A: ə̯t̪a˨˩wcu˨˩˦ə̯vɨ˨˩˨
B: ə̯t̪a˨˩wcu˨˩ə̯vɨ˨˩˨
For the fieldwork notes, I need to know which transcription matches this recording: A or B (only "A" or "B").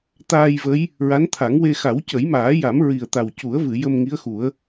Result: A